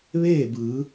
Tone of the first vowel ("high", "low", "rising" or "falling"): falling